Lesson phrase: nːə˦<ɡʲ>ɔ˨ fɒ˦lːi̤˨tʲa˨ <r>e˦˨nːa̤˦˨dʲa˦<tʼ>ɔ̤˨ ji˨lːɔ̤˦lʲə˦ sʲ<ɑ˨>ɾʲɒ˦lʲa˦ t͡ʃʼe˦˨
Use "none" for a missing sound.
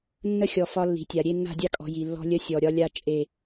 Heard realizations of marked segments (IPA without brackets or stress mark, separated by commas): xʲ, ɾʲ, kʼ, ɔ˨